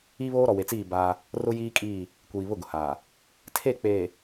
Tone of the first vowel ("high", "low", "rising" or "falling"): high